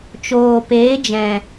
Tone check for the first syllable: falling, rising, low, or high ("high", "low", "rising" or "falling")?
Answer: low